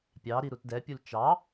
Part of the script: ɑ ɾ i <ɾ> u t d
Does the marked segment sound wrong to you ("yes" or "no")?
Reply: no